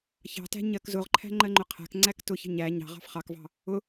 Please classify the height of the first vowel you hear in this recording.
low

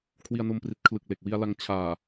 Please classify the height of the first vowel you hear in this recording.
high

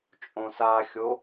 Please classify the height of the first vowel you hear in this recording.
mid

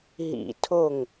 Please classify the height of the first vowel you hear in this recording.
high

